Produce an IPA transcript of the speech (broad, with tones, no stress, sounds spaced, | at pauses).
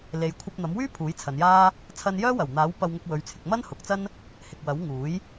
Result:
l e˨˧ j kʷʰ ɐ˧ p̚ n̪ ɐ˨˥ m w yː˥ pʰ uː˨˥ j t͡sʰ ɐ˨˧ n j aː˥ | t͡sʰ ɐ˧ n j œː˥ w ɐ˨˩ w n̪ aː˨˥ w p ɐ˧ w ŋ ʊ˧ k̚ w ɵ˨˧ ɥ t͡sʰ ɪ˨˥ k̚ m ɐ˥ n h ʊ˨˥ k̚ t͡s ɐ˥ n | h ɪ˨ k̚ w ɐ˨˥ w ŋ uː˨˥ j